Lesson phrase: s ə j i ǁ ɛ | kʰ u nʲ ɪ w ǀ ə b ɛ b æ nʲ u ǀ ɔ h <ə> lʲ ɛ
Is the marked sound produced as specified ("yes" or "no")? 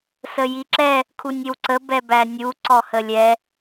yes